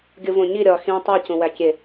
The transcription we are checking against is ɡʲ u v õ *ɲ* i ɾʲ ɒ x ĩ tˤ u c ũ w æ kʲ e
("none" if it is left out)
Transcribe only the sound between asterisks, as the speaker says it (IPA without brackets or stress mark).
ɲ